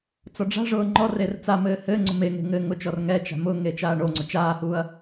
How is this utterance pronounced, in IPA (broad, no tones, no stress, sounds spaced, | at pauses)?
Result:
t͡s ɔ ɖ͡ʐ a̤ ʐ ʊː ŋ͡ǃ ɔ r e r t͡s a m ɘː h ɘː ŋ͡ǀ ʊ m e ŋ e̤ ŋ ɘː ŋ ʊ t͡ʃ ɔ r ŋ ɛ t͡ʃ a̤ m ʊ ŋ e t͡ʃ aː ɳ o ŋ͡ǀ ʊ t͡ʃ aː h uː ɐ̯